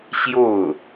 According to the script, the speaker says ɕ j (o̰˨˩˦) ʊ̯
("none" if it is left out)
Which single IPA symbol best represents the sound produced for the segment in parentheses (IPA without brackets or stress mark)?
o˥˩